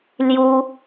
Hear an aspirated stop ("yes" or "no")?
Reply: no